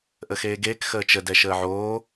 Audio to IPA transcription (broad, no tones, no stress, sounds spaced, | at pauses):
ʔ ə x eː ɡ eː k x əː t͡ʃ ə d ɛ ʃ əː ʕ oː